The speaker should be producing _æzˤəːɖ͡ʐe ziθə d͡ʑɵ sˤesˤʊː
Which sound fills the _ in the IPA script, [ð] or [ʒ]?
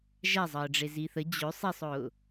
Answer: ʒ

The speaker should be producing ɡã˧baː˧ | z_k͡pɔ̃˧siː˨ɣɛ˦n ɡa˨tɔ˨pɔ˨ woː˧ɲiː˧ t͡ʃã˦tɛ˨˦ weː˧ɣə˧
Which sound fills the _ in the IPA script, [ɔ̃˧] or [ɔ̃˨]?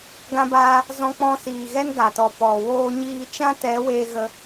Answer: ɔ̃˧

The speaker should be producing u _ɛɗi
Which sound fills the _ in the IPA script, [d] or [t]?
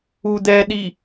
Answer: d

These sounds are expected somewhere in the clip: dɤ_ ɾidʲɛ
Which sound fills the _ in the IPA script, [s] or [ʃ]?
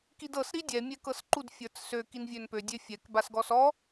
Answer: s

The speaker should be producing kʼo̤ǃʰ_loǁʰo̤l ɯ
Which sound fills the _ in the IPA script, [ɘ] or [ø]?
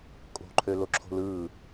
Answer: ø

